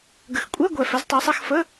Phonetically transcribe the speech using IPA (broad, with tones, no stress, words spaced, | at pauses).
ɡə˨˥xkʷʼɛ˧˥˧ɡʷɛ˨ fɛ˨˥ztˤø˨˥sˤɛ˧˥˧x fə˧˥˧